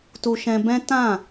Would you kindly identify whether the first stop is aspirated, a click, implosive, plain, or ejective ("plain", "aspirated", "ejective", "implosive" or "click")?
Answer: plain